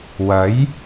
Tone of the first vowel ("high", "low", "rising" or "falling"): rising